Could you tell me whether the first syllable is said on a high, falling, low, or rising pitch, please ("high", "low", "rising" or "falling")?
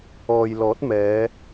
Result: low